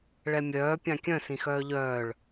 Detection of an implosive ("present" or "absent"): absent